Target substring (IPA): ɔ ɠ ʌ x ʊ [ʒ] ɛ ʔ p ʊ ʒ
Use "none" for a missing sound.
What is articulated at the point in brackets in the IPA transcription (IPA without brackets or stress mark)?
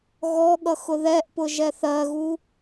ð